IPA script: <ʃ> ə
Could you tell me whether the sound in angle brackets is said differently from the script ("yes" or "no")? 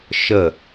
no